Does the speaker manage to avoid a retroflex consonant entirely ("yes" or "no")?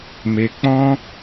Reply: yes